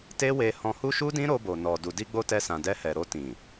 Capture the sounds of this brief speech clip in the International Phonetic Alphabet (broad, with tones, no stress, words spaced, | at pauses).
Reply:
te˦we˧hɔ̃˧ hu˦ʃu˦ dĩ˦ɾo˧bo˨nɔ˨ du˨di˧ɡ͡bo˧ tɛ˧sã˨dɛ˧hɛ˨ ɾo˧tĩ˨